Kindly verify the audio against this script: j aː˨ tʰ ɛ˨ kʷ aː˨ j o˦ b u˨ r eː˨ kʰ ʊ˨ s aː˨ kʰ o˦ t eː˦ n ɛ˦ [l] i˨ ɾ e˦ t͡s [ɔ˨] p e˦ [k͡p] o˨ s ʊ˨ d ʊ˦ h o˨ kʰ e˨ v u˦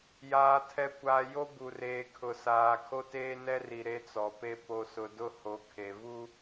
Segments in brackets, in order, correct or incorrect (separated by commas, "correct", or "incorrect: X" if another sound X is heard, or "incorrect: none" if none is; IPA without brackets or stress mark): incorrect: r, correct, incorrect: p